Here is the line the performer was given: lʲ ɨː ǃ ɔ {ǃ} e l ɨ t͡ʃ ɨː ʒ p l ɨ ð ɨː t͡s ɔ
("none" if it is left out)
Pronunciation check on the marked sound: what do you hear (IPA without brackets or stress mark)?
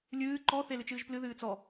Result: θ